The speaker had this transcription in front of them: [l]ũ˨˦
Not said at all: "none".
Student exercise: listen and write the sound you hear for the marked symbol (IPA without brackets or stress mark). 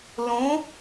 l